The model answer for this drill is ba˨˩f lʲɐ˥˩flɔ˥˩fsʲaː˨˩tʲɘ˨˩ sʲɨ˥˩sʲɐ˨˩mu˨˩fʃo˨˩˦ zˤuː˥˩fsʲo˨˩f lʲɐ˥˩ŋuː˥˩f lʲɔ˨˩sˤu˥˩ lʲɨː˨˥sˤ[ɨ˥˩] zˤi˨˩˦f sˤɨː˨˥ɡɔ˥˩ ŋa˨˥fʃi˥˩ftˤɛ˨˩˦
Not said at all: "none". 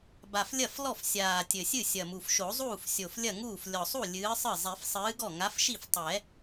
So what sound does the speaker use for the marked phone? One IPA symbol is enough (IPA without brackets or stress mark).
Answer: ɨ˥˩